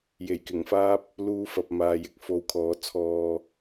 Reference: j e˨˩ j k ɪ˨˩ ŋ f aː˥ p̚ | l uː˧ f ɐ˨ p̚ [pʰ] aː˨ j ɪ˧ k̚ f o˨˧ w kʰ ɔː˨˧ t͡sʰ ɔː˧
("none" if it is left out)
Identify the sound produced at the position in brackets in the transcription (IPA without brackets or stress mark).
m